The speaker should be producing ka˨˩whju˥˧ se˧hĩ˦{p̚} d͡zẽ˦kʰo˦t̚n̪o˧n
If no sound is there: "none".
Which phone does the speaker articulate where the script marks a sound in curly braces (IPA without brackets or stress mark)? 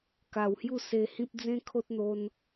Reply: p̚